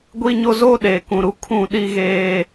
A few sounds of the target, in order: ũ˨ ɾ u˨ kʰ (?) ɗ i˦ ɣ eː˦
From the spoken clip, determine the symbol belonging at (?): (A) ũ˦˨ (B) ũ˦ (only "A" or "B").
A